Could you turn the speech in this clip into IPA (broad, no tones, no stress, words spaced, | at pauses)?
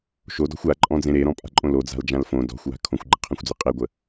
ʃodɔ̤xʷ aǃʼɔ̃d͡zẽ ɾeɾɔ̃pʼa̤ǃʼõ lod͡za̤ld͡ʒãl fõ dɔ̤xʷwa̤ kʰõxʷɡ͡ǃə̤qʰãxʷd͡zə qʼeɡʷə